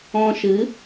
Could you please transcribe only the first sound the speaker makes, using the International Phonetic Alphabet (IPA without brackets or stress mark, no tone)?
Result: ɔ̃